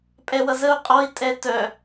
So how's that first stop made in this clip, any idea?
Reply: ejective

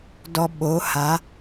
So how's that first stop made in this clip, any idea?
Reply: plain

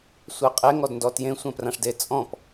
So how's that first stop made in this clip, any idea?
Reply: ejective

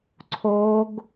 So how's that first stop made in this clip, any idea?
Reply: click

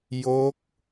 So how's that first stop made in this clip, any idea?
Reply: plain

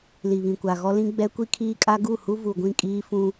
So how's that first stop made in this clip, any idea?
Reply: plain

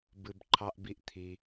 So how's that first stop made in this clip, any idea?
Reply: plain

